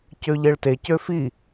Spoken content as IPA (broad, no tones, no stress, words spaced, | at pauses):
cøʎeɭtecø fi